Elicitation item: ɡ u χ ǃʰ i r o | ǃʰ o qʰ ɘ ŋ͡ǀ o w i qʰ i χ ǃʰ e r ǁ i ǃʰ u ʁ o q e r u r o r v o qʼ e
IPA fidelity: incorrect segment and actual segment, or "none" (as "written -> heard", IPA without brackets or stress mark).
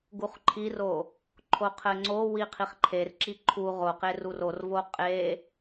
none